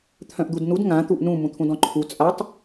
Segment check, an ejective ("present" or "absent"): present